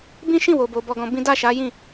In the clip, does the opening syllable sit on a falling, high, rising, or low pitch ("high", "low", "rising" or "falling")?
high